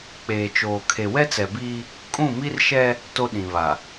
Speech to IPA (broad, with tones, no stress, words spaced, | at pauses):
k͡peː˨t͡ʃoː˨ kʰe˨wɛ˦t͡sɛ˨biː˦ | kʼũ˦˨mi˦rʃɛ˦ | to˦ɗĩ˨βa˨